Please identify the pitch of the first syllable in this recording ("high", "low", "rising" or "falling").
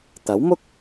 rising